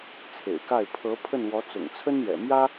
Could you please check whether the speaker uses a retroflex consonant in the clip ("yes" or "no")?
no